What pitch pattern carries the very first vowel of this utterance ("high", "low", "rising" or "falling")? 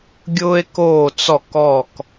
high